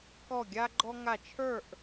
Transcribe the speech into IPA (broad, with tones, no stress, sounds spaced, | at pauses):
k ɔ˥˧ ɡʲ a˥ ɡ͡ǃ ɔ˥ ŋ a˥˧ t͡ʃʰ ə˞˥˧ ʔ